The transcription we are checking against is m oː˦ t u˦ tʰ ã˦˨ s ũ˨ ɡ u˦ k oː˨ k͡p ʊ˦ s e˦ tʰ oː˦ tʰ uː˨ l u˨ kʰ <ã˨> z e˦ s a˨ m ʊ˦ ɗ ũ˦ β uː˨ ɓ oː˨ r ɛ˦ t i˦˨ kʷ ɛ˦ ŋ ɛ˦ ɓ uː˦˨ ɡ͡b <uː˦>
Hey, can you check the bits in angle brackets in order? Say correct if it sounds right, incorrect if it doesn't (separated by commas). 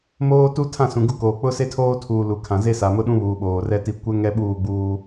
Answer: correct, correct